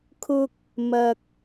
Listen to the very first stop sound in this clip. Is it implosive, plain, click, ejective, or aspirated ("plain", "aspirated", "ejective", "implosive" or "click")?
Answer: aspirated